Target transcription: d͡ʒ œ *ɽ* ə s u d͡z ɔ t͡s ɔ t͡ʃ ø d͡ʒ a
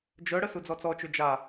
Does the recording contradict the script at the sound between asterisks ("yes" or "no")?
no